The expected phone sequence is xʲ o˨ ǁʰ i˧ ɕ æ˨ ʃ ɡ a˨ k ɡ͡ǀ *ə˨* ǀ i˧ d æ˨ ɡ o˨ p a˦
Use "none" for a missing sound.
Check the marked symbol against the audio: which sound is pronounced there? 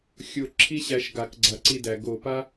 a˨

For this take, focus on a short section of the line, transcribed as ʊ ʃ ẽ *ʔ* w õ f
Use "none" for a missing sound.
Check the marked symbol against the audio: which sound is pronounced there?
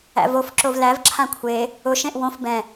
ʔ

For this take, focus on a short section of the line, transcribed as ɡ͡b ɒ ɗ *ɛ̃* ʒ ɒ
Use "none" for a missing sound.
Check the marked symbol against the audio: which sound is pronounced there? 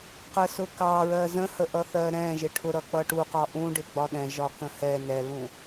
ɛ̃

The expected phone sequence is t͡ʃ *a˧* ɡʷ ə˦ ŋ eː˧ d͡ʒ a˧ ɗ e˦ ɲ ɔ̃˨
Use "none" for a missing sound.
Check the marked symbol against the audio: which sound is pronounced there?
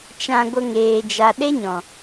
ã˧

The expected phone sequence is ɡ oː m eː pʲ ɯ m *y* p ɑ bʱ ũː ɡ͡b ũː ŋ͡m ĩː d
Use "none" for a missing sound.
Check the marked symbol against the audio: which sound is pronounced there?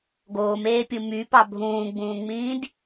y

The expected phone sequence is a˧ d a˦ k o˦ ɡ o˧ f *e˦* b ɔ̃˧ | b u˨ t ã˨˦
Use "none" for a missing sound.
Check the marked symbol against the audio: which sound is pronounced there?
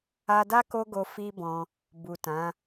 i˦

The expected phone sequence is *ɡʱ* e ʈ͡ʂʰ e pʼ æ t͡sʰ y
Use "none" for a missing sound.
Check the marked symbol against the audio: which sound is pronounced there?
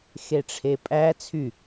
x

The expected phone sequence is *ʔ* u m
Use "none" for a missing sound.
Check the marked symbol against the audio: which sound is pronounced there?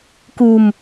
k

